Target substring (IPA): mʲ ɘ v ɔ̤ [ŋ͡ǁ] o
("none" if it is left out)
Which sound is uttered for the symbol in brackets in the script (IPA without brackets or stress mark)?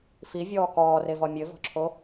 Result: ǁʰ